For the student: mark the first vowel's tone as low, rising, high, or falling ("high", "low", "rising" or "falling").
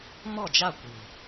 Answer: falling